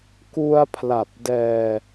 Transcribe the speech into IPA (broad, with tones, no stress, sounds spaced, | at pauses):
k u˧ a̯ pʰ l a˨˩ p̚ d ɛː˧